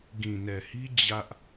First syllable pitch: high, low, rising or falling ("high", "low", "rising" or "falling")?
low